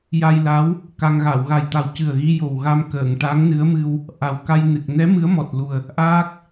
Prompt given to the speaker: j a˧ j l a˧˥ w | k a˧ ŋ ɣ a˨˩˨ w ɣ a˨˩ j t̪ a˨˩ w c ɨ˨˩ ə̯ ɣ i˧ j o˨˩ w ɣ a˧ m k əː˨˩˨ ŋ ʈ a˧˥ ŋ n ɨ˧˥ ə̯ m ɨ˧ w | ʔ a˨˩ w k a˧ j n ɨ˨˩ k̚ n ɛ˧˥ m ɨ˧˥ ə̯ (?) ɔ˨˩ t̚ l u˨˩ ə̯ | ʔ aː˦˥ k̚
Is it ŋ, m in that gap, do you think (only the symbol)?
m